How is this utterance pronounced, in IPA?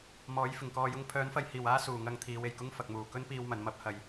m ɔː˨˥ j f ɪ˨˩ ŋ k ɔː˧ j ʊ˥ ŋ pʰ œː˨˥ n f ɐ˧ j h iː˨˩ w aː˥ s uː˨˩ ŋ ɐ˧ ŋ t̪ʰ iː˨˧ w e˨˩ j k ʊ˥ ŋ f ɐ˨ k̚ m uː˨˩ k ɵ˥ n p iː˧ w m ɐ˨˧ n m ɐ˥ p̚ h ɐ˧ j

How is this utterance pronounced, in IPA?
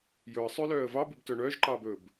j ɵ ə̯ sˤ ø l œː ə̯ v ɑ b y b t œ ɳ œː ʒ ǃ ɑː b ɵː b

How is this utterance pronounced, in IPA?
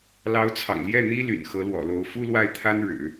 l ɑ˧˥ ʊ̯ t͡sʰ ɑ̰˨˩ ŋ l j ɛ˥˩ n̪ i˥ l y̰˨˩ n x ɤ˧˥ l w ɔ̰˨˩ l o˧˥ ʊ̯ f u˥ l w a˥˩ ɪ̯ t̪ʰ a˥ n ɻ ɻ̩˨˩˦

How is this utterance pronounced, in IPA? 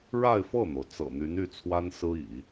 ɻ a˥˧ ɪ̯ f ɤ˥˩ n̪ o˩ ʊ̯ t͡s ɤ̰˨˩ n̪ y˧˥ n y˥˩ t͡sʰ w a˥ n s ɹ̩˥ ḭ˨˩˦

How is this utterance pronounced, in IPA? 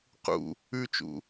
q ṵ | ʉ t͡ʃ ṵ

